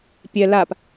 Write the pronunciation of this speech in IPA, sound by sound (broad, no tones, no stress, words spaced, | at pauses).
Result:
pʲɛ lap